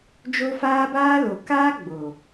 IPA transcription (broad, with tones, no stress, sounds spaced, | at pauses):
d͡ʒ o˦ f aː˦ b aː˦ l o˨ k aː˦ ɡ͡b o˨